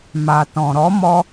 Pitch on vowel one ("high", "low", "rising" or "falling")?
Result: low